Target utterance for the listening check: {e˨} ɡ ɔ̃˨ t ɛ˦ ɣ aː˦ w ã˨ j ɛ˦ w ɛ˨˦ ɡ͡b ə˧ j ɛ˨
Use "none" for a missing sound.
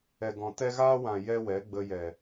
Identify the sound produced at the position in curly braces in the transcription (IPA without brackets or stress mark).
ɛ˨